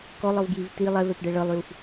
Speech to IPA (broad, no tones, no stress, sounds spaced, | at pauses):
k ɔ lˠ ɤ v ɡ j i v t i lˠ ɛ v ɛ p ɖ ɛ ɭ ɤ lˠ j u f